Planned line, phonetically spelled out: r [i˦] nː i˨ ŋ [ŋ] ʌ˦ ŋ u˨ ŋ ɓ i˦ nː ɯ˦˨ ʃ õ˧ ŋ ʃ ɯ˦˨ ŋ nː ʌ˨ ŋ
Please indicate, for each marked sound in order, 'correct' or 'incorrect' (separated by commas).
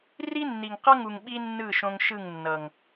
correct, incorrect